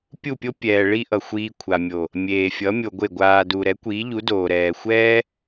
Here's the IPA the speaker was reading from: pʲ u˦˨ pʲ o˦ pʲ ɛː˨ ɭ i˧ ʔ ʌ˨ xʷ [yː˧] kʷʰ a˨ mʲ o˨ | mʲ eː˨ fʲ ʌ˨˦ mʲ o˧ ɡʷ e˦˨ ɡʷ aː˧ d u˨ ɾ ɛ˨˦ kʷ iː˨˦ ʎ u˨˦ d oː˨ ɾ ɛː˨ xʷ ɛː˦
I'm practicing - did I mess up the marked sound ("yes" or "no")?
yes